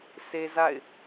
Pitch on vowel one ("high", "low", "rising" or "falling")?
high